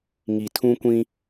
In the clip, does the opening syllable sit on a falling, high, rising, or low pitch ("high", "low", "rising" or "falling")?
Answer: low